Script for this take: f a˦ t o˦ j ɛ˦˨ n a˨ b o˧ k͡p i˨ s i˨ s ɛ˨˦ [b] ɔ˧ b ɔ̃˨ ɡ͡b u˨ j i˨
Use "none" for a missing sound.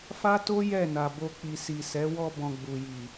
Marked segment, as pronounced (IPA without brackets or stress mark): w